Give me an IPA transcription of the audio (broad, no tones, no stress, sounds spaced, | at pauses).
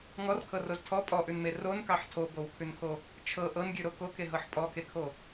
ŋ ɔ r kʰ ɤ r o z tʰ ɔ pʼ ɔ ʔ ʉ n m e r o n k ɑ ħ tʰ o b o w kʰ ʉ n kʰ o | t͡ʃʰ ɤ ʔ ɤ n ɡʲ ʉ ɾ o k o k e ɦ ɤ ħ pʼ ɔ k e kʰ o